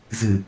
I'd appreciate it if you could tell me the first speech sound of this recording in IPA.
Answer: z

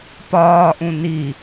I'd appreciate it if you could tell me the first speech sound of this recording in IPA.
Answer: p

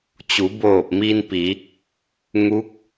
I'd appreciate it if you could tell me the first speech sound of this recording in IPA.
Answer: t͡ɕ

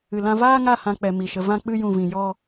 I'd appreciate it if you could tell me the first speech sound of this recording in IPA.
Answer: ɨ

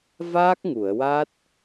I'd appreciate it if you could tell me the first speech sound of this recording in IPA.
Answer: v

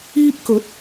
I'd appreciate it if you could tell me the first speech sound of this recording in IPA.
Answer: iː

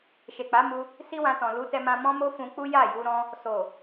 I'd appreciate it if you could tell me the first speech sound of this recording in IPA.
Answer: ʃ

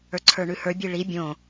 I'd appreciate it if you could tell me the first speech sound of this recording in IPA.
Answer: ə˞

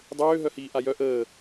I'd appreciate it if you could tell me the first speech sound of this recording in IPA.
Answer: dˤ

